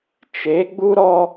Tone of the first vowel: rising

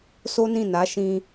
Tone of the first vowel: high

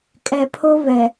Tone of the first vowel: low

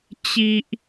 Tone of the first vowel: low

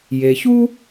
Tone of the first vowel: low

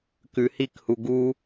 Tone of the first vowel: low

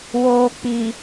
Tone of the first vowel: low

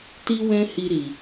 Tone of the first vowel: high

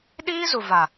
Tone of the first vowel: high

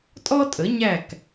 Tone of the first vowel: high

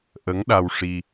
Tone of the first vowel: rising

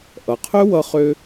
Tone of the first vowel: low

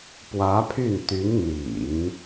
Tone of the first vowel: rising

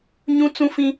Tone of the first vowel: high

